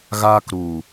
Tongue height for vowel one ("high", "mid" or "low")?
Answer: low